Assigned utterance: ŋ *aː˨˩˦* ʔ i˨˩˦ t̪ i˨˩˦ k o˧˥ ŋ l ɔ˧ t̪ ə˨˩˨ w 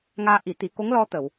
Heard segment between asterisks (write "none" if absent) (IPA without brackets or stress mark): aː˧